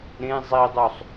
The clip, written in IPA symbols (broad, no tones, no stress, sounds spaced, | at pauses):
ɾ ẽ zˤ i dˤ u sˤ